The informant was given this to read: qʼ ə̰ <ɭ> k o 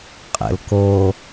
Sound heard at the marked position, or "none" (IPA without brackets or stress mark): l